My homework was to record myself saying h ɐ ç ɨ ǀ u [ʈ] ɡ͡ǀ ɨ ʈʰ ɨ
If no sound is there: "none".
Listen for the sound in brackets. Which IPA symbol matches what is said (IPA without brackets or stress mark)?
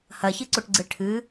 ʈ